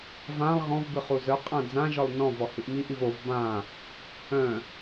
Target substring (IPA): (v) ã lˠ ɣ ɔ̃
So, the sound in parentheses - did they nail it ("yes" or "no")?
yes